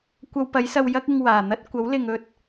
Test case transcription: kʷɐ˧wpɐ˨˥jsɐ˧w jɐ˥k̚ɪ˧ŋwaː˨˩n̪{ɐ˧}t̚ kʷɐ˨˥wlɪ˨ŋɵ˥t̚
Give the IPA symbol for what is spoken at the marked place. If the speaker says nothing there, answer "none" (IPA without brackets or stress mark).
ɐ˥